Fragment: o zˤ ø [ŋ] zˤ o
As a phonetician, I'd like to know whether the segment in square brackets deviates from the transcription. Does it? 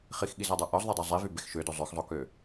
yes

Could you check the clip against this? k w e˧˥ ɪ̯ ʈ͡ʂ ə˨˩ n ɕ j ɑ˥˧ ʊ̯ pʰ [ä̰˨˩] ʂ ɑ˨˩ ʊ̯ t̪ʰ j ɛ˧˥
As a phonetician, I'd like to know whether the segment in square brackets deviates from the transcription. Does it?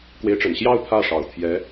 yes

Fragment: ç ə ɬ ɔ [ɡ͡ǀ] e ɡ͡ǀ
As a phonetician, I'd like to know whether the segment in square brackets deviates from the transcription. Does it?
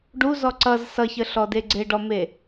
yes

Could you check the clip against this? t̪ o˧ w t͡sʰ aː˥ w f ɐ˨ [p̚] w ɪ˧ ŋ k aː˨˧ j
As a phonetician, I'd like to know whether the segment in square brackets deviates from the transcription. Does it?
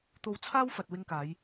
yes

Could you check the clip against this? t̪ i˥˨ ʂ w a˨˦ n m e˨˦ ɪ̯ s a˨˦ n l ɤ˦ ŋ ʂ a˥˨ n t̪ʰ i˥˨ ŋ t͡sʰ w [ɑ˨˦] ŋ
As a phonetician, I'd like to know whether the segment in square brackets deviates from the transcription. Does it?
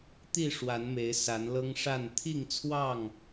yes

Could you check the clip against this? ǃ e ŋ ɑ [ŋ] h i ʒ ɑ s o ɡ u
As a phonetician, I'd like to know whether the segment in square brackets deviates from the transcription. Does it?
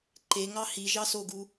yes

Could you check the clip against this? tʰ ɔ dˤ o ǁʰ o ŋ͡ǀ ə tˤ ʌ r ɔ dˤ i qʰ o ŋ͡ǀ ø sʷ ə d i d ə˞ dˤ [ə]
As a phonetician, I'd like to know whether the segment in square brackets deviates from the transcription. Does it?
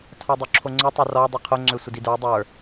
yes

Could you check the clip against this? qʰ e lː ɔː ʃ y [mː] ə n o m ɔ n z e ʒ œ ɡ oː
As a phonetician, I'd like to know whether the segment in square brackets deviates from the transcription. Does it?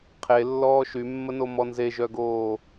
no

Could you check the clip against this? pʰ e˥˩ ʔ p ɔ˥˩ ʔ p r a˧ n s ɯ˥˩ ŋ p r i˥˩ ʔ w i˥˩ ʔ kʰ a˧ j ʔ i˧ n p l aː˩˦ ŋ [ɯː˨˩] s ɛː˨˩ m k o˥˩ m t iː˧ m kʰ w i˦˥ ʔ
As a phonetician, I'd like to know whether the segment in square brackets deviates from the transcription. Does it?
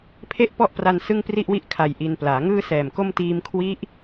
yes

